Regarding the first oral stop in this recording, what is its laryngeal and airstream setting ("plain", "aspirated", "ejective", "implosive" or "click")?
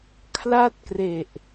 aspirated